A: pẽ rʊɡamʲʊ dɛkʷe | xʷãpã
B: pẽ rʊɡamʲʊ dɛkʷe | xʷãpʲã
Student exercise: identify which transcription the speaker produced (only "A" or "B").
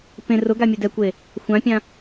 B